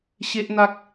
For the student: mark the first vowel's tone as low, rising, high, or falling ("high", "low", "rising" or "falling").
high